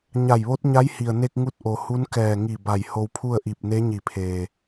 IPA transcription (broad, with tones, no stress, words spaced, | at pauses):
ɲa˧˩jʋo˧˥t̚ɲa˧˥jhi˩ə̯ ne˧k̚ŋu˧t̚ ʔo˩hu˧˥n kɛː˧˩ŋi˧˩ ba˧˩jho˧wpʰu˥˨ə̯ʔi˧˩p̚ ne˧˥ɲi˧˩pʰeː˩